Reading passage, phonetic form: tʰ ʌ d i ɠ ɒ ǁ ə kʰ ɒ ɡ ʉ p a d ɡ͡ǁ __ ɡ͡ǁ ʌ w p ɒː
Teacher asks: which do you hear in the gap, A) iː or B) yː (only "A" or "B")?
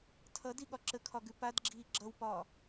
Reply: A